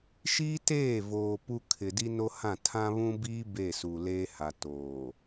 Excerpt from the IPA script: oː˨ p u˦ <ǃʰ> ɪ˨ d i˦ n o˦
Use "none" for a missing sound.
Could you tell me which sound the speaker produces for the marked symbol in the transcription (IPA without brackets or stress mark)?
kʰ